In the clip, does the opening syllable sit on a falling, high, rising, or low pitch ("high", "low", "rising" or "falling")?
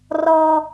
high